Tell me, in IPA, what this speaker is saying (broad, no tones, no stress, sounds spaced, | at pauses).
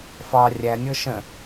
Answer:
f ɑ rʲ æ nʲ ɤ ʃ ə̃